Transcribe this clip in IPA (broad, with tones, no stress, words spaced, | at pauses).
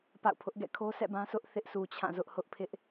pa̰˦˨ʊ̯pʰʊ˦ʔ ɡɛ̰˦˨kʰo˦sʰɛ̰˦˨bã˦ sʰʊ˦ʔθɪ˦ʔsʰu˨ t͡ɕʰã˦˨zʊ˦ʔhʊ˦ʔ pʰɪ˦ʔ